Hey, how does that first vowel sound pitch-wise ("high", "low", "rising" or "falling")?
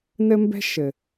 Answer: high